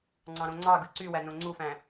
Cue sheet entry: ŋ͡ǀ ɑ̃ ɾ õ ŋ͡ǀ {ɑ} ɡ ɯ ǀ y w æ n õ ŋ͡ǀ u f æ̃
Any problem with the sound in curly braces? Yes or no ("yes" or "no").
no